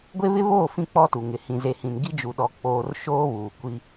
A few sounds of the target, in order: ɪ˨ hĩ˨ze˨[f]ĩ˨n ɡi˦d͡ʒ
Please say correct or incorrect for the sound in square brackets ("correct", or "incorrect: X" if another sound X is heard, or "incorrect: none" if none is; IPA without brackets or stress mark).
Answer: incorrect: h